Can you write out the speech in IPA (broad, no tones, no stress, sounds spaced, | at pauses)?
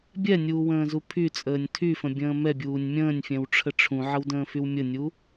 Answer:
bʲ ɛ nʲ uː w ə̃ː z u pʰ y t͡sʼ əː nʲ tʰ y f ə̃ bʲ ə̃ː m ɛ bʲ uː nʲ mʲ ə̃ː nʲ fʲ ɛ̃ w ʈ͡ʂʰ ə ʈ͡ʂʰ ũ ʕ ə w d ə̃ː f y w mʲ ə nʲ u